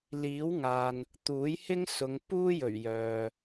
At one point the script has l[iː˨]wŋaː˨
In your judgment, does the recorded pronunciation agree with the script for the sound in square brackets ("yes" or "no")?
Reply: no